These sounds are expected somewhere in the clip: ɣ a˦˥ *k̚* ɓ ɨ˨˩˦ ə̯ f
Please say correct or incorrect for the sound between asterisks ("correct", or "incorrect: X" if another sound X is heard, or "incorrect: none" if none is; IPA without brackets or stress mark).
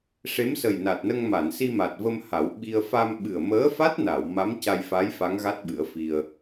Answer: incorrect: t̚